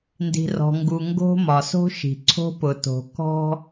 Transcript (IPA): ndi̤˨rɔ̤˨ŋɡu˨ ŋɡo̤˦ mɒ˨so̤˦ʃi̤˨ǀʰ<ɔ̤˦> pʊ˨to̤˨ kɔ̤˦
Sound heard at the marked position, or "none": o̤˦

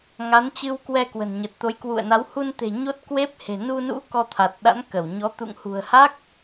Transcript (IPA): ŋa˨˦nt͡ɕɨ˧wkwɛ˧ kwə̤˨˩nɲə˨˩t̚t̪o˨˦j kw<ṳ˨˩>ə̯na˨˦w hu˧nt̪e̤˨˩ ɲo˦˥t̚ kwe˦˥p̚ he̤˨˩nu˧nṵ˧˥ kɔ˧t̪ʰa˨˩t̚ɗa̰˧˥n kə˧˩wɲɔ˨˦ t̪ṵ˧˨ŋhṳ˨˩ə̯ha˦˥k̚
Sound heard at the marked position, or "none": ṵ˧˨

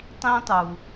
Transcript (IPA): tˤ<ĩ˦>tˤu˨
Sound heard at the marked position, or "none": ĩ˦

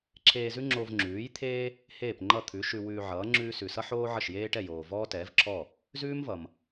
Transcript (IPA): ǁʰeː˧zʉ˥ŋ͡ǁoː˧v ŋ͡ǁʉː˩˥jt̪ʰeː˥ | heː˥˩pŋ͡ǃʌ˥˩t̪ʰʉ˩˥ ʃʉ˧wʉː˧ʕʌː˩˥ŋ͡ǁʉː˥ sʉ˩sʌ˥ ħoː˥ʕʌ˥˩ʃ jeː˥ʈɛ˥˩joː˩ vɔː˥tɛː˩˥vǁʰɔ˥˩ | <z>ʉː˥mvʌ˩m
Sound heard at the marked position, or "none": z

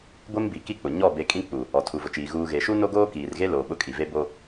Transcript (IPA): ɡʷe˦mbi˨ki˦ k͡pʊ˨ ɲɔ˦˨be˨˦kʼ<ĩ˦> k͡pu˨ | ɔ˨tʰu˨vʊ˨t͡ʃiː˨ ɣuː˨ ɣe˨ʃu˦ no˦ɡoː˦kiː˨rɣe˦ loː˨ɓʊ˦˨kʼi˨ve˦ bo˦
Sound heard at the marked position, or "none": ĩ˦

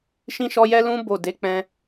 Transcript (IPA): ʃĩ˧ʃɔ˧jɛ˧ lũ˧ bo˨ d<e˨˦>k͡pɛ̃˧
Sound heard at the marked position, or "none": e˨˦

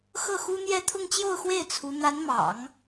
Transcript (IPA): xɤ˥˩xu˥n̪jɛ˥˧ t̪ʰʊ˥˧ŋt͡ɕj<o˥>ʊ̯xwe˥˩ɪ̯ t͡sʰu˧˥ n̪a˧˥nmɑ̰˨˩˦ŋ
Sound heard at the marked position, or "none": o˥˧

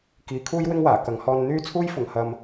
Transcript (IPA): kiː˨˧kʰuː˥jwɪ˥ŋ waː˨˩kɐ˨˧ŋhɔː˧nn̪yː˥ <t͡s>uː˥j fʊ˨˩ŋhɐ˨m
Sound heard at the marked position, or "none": t͡sʰ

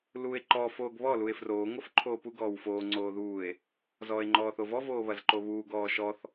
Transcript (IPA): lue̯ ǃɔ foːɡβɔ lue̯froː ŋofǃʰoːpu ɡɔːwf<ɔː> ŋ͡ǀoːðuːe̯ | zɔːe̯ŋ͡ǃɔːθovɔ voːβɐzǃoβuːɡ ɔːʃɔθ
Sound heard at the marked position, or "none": oː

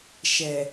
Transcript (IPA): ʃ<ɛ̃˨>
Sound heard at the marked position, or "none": ɛ˨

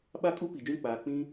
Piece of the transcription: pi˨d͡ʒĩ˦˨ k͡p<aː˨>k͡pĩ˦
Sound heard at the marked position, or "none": aː˨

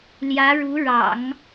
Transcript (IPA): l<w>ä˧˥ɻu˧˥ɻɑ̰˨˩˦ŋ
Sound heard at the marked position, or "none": j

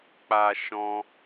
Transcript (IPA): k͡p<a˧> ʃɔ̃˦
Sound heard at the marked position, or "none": a˧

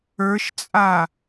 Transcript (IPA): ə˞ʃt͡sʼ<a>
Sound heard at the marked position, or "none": a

